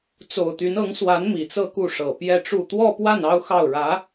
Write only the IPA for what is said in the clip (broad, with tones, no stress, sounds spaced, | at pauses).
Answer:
t͡s o˨˩ ʊ̯ t̪ y˧˥ n ɤ˧˥ ŋ s w a˧˥ n m i˨˩ t͡s ɤ˥˧ k u˥˩ ʂ ɤ˨˩ p j ɛ˥˧ ʈ͡ʂ u˥˧ t̪ w ɔ˥˧ p w a˥˩ n ɑ˥ ʊ̯ x ɑ˥˩ ʊ̯ ɻ ä˧˥